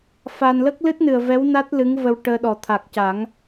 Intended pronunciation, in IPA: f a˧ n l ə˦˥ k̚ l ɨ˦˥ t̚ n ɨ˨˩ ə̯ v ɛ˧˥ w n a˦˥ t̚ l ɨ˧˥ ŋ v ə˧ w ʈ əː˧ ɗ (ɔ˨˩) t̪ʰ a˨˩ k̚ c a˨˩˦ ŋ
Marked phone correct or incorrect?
correct